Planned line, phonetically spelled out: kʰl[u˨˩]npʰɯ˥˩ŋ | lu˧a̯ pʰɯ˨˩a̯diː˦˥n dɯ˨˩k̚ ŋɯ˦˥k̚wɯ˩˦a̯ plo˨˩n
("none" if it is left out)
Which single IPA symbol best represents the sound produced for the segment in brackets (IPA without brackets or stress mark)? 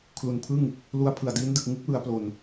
u˨˩